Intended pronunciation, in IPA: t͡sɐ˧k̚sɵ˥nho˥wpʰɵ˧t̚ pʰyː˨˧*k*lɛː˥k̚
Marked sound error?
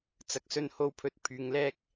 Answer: yes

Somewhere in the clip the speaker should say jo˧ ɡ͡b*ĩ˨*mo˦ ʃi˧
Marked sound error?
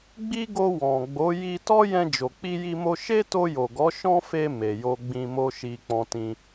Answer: yes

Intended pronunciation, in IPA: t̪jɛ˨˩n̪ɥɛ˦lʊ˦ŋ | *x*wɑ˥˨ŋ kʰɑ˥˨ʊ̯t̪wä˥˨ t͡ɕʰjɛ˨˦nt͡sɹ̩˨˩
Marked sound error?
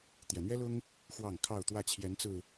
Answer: no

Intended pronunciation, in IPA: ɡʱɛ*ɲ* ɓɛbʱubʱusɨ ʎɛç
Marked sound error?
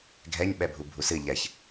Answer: no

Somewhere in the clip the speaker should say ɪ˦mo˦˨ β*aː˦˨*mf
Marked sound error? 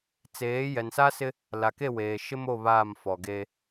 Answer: no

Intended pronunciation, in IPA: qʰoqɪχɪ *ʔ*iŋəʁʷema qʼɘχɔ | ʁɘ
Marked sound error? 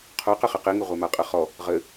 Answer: yes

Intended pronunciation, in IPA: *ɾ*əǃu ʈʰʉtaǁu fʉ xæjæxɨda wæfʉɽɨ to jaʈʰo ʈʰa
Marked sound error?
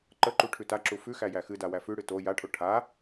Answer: yes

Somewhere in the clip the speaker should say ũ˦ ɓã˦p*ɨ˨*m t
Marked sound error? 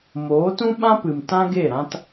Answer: no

